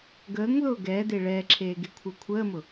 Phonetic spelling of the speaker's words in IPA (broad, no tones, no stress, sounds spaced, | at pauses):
ɡ əː ŋ ð ʊː ɡ ɛː d e ɭ ɛː ǁʰ eː ɡ e kʷʰ ə˞ kʷʰ əː m ʊ